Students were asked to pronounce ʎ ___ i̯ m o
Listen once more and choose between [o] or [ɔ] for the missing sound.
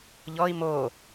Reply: ɔ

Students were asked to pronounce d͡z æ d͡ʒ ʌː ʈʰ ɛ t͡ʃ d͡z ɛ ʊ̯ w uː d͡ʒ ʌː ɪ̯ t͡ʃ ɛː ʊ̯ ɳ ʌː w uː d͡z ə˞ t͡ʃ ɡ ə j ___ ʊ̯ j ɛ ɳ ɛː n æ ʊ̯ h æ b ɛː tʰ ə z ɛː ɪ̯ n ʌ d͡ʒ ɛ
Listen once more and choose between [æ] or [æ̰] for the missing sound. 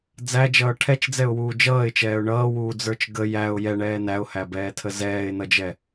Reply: æ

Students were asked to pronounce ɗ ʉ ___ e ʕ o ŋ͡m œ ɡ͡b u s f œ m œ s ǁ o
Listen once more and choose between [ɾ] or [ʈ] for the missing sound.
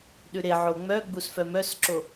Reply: ɾ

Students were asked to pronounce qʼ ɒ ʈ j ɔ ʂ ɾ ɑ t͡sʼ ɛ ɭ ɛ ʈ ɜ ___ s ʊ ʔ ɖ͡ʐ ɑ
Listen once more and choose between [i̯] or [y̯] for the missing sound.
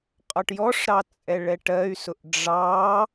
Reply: y̯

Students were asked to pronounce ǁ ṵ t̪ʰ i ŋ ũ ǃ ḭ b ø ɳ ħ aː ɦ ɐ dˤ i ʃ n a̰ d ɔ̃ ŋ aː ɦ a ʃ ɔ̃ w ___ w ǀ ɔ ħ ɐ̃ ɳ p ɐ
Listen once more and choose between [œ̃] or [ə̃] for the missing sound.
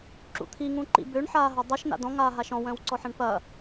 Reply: œ̃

